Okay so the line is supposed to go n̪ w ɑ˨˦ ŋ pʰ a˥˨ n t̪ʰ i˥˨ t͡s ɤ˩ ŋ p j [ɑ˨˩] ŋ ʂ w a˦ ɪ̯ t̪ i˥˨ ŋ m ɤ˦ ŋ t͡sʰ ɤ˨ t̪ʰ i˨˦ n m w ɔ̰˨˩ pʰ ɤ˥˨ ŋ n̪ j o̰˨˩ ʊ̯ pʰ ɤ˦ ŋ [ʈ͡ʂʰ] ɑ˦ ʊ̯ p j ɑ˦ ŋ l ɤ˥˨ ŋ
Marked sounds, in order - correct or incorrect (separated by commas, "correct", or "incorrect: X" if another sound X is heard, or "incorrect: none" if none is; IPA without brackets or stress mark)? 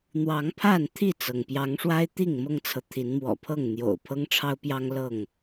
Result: incorrect: ɑ˨˦, correct